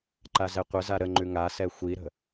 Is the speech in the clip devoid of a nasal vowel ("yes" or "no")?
yes